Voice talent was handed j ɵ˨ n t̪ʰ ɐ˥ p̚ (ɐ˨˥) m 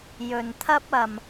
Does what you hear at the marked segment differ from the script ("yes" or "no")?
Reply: yes